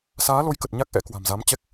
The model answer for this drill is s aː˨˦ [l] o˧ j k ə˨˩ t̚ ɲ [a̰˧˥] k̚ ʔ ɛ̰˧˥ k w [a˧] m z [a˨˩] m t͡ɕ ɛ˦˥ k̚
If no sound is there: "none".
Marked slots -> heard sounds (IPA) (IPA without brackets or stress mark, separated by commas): l, a˦˥, a̤˨˩, a˨˦